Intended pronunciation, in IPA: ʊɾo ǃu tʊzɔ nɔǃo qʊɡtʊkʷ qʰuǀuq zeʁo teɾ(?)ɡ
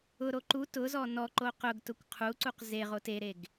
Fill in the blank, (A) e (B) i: A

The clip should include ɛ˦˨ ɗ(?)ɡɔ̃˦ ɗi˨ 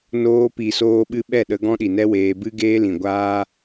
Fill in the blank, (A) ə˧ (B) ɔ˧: A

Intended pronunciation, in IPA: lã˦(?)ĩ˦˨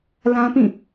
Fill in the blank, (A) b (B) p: B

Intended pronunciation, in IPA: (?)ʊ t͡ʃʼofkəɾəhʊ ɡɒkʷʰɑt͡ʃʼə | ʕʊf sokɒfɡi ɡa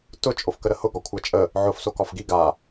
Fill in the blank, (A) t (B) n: A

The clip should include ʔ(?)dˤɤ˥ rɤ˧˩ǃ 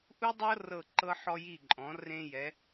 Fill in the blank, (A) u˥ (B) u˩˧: A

